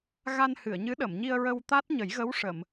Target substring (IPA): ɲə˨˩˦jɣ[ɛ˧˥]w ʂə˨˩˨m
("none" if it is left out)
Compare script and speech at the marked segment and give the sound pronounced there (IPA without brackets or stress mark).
ə˧˥